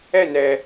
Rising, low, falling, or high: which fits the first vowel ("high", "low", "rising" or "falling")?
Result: falling